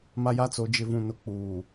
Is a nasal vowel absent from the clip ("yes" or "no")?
no